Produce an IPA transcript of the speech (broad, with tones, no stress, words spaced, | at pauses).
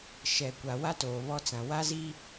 ʃɛ˨kʷa˨ wa˦ toː˨βɔ˦t͡sã˨ wa˦zi˦